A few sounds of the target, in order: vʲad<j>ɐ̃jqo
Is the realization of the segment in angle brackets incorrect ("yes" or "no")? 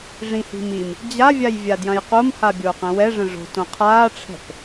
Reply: no